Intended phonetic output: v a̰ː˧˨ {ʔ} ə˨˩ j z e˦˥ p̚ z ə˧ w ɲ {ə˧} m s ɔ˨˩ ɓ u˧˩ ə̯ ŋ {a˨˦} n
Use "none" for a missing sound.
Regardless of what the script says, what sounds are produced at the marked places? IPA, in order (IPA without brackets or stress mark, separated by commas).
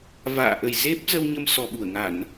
ʔ, ə˧, a˧˩˨